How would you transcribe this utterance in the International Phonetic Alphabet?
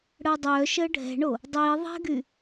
ɽ əː dˤ œː ʃ əː ɖʱ ɛ̤ ɳ o | dˤ iː ðˤ ɛ̤ ɡ y

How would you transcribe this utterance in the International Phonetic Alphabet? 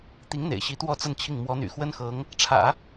t̪ i˧˥ ŋ n̪ ḛ˨˩ ɪ̯ ɕ i˧˥ t̪ w ɔ˥˧ t͡s ə˥˧ n t͡ɕʰ i˥˩ ŋ m w ɔ˧˥ n̪ y̰˨˩ x w ə˥ n x ɤ˧˥ ŋ | ʈ͡ʂʰ ä̰˨˩˦

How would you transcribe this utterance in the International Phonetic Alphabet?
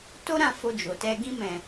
t o˦ ɾ ã˦˨ f o˧ d͡ʒ o˨ t ɛ˧ ɡ ĩ˧ m ɛ̃˨

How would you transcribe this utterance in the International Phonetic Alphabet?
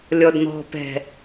lʲ ɔ d n̪ ɔ̤ p ɛ̤

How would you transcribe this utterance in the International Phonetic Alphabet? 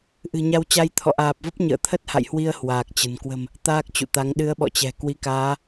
ʔ ɨ̤˨˩ ɲ a˧ w t͡ɕ a˧ j t̪ʰ ɔ̰˧˨ ʔ aː˨˩ p̚ v ə˦˥ p̚ ɲ ə̰ː˧˨ t̪ʰ ə˦˥ t̚ h a̰˧˨ j h w i˧ ə̯ h w aː˨˩ k̚ t͡ɕ ə̤˨˩ n k w ə̤˨˩ m | t̪ aː˦˥ k̚ t͡ɕ ṵ˧˨ t̪ a˨˦ ŋ ɗ ɨ˨˦ ə̯ ɓ ɔ̰˧˨ t͡ɕ ɛ̤˨˩ k w i˨˦ k aː˨˦

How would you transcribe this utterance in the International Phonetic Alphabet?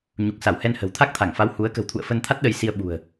ɲ u˨˩ k̚ s a˧˩ w h ɛ˧ n h ə̤˨˩ w t̪ʰ a˦˥ k̚ t̪ʰ a˧˩ ŋ f a˨˦ w h u˨˦ ə̯ k ə̤˨˩ w t̪ʰ ṵ˧˨ ə̯ f ə˧ n t̪ʰ a˦˥ t̚ ɗ ə˧ j s i˧ ə̯ ɓ ṳ˨˩ ə̯

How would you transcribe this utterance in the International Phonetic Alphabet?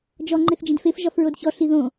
d͡ʒ ɔ ŋ͡ǃ e θ d͡ʒ ĩ d f e f ʒ ɒ f ɹ o d ç ɔ ɬ i ð õ

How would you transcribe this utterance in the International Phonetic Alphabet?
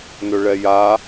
n ɵ ɭ ɛ j a

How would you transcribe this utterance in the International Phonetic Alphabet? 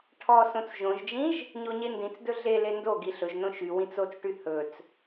ʈʰ ɔ s õ t͡s ʒ õ ʒ d͡ʒ ĩ ʒ | ɲ o ɲ e n d ĩ t͡s d ɵ ɮ e l e n d o ɡ i ɬ ɵ ʒ n õ ʃ y w ĩ t͡s o t͡s ʈ y h ɵ t͡s

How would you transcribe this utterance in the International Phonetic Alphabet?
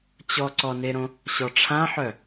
t͡ɕ ɔ ǀ ɔ n e ɾ õ | ɕ ɔ ʈ͡ʂʰ ã ħ œ

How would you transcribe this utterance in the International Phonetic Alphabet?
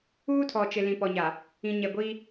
uː˦ tʰ ɔ˨ t͡ʃ ɪ˨ l ĩ˨ p ɔ˨ ɲ a˨ | ĩ˨ ɲ ɛ˨ ɡʷ iː˦

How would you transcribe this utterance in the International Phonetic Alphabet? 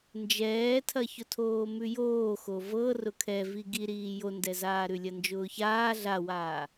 n d͡ʒ ɛː tʰ ɐ ç ʊ tʰ oː m ʉ j oː x o v ɤ r ʊ kʰ ɛ v i ɡ i ɾ iː j o n d ɛ z aː ɾ ʉ lʲ ɐ n d͡ʒ ʊː ç aː ɮ a w aː

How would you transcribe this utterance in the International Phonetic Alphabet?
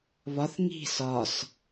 β ɒ θ ŋ i̤ s ɒ s

